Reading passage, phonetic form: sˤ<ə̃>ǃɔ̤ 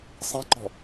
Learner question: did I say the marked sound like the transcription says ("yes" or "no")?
no